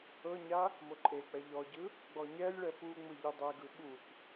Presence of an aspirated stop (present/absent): absent